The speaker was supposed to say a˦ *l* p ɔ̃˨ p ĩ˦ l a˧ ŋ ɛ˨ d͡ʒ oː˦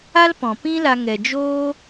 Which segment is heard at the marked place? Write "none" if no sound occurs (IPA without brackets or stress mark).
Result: l